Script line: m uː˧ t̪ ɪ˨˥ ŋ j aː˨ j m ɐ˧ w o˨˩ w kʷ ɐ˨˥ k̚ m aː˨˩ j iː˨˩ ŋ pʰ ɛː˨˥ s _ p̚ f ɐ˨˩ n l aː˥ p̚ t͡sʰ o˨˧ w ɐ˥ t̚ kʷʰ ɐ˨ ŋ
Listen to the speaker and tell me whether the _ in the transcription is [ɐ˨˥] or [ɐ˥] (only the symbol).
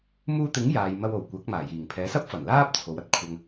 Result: ɐ˥